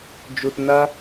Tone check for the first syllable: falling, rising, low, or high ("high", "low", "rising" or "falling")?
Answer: low